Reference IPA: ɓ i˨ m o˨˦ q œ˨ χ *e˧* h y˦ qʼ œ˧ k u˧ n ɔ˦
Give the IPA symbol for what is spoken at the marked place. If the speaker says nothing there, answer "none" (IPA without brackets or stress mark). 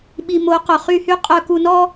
y˧